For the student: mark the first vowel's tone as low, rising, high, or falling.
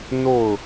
falling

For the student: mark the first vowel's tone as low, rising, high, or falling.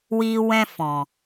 low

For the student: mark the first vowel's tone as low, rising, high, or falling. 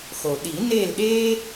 low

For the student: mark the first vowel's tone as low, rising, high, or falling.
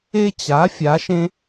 high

